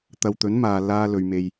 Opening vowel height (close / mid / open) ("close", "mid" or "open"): open